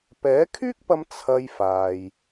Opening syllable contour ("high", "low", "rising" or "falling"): rising